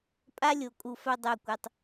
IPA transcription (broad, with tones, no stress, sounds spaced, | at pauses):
pʼ a˦ lʲ o˨ kʼ u˨ f œ˦ dˤ œ˦˨ kʷ œ˧ tˤ